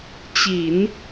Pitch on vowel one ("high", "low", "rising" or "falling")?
low